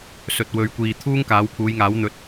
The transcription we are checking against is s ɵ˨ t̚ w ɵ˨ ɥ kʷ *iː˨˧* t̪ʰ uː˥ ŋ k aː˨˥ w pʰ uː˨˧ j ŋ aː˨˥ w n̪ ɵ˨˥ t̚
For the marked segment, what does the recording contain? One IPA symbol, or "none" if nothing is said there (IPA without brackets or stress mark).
iː˨